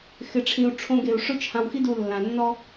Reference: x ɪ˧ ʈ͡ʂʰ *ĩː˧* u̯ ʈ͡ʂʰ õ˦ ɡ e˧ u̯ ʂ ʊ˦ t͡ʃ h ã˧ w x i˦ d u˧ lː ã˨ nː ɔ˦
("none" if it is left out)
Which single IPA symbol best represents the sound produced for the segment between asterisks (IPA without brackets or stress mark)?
ĩ˧